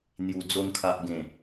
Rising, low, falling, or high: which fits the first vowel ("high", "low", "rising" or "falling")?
low